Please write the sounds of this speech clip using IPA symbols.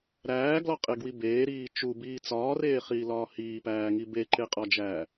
ɾæːɡlɒqʼeɡwi beːɾiː t͡ʃubiː t͡sɒːreːχiːlɒː hiːpæːŋi beǃeqʼɒd͡ʒæː

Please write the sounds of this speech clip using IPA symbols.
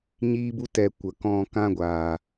ɲiː˦bu˦ tɛ˧ kʷə˧ kɔ̃˧ kã˦ɡʷaː˨

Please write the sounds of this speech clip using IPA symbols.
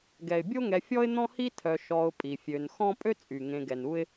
ɡɛ˩ɪ̯bʲo˥ŋɛ˨fʲɔ˥ɪ̯ n̪ɔ̃˥hi˥ tʰœ˨ ʃɔ˨ʊ̯ pʼi˩fʲø˨n xɔ̃˦pʼø˥t͡sʼy˩ ŋẽ˨ɡɛ˩nu˦ɪ̯

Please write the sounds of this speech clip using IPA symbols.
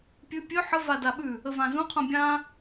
pʲʉ pʲø ħə vadaɓʉ | əvãzũ qʰũbʲã

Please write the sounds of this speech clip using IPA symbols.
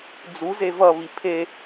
d͡zuze vʌβi pʰe

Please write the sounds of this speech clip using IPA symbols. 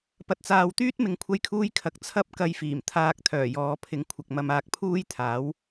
pɐ˨t̚t͡saː˨wt̪yː˥t̚ mɪ˧ŋkʷʰɐ˥jkʰuː˥jkʰɐ˨˥k̚ t͡sʰɐ˥p̚ kɐ˧jfiː˨˩m t̪ʰaː˧k̚t̪ʰœː˨˩jɔː˨˧pʰɪ˨˥ŋ kʷʰɐ˨k̚mɐ˧m aː˧k̚pʰuː˥jt̪ʰaː˨˥w

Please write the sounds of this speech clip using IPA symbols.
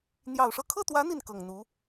n̪jɑ˨˩ʊ̯ʂɤ˥˧ kʰɤ˥˩t̪wä˧˥ n̪i˥˩nkɤ˨˩ŋ n̪u˧˥

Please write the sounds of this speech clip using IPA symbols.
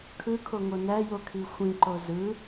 kʰɯkʰoŋo næjokʰi xʷĩǃo zɯ

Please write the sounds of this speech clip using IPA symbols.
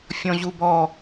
fʲɔ̃ʑubɔ

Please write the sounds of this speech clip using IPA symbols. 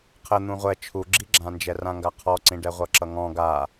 qʰə n̪ũʁʷɛ t͡ʃʰuɡ͡ǁiɡ͡ǁãnd͡ʒɛ rãŋɡaqʰɔǀĩ ɖɛʁʷʌǁʌŋɔ̃ ɡa

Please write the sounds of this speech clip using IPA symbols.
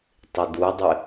tˤɪdudˤɪ

